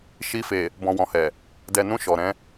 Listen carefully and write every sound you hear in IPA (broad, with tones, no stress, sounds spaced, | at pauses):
ʃ i˧ f e˨ | b ɔ̃˨ w ɔ̃˨ h ɛ˨ | d ɛ˨ n ũ˧ ʃ ɔ˨ ɾ ɛ̃˨˦